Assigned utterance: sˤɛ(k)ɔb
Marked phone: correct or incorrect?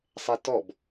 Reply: incorrect